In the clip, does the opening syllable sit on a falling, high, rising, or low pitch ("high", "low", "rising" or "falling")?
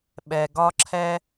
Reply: low